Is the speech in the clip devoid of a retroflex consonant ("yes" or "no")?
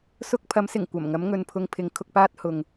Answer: yes